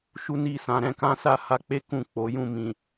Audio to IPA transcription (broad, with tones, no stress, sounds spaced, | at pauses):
ʃ u˦ n i˦˨ s ã˧ ɾ ɛ̃˧ k ã˦ s a˦˨ h a˧ k͡p e˦ k ũ˦˨ k͡p o˨˦ j ũ˦˨ m ĩ˨